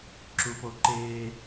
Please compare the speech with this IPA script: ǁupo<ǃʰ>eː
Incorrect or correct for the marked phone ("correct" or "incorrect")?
incorrect